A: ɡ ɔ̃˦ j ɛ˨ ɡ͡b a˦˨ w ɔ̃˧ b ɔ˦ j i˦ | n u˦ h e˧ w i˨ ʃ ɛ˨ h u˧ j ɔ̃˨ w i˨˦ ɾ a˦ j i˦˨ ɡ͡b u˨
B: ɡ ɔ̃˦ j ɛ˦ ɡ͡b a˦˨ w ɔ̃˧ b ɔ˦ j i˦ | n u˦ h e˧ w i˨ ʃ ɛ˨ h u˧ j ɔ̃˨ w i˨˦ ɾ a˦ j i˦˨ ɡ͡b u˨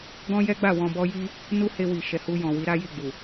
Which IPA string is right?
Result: B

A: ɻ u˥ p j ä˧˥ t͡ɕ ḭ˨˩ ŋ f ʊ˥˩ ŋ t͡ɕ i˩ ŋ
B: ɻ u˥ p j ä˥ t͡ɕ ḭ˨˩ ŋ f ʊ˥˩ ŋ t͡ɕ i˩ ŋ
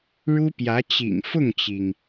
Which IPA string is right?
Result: A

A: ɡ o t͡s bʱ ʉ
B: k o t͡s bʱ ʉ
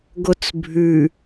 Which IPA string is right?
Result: A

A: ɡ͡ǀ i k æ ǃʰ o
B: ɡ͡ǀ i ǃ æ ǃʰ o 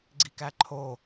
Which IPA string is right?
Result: A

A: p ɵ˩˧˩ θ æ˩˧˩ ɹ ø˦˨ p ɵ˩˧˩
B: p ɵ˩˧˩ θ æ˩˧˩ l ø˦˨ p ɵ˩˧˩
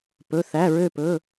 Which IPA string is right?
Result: A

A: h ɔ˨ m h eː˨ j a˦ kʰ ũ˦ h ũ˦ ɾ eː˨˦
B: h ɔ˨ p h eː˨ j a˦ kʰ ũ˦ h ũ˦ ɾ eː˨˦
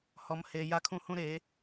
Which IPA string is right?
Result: A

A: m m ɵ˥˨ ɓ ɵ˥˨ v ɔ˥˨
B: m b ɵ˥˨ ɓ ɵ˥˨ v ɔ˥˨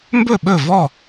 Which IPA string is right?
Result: B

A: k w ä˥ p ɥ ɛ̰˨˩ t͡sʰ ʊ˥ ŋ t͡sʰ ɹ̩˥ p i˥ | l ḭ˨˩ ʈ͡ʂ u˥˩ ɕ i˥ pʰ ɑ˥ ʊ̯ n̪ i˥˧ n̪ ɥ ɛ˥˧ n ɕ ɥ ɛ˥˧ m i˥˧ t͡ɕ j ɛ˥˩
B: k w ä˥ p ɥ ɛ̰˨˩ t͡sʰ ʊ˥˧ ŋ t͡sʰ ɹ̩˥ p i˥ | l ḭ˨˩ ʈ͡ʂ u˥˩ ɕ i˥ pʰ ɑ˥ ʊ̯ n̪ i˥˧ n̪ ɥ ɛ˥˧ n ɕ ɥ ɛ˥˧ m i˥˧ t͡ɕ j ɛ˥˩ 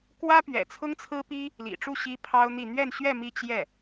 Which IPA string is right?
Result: A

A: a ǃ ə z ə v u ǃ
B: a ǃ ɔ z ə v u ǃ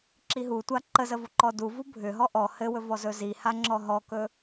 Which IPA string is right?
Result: A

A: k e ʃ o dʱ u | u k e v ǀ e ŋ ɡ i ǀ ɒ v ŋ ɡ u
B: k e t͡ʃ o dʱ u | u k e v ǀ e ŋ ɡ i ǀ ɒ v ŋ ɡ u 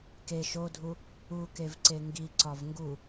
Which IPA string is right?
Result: A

